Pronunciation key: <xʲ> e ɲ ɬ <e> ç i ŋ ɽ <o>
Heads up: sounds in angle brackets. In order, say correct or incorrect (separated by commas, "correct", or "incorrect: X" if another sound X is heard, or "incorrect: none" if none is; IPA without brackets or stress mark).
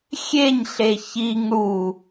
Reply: correct, correct, incorrect: u